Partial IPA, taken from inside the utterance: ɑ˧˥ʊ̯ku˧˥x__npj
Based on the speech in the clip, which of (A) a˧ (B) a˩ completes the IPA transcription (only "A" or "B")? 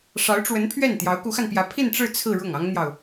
A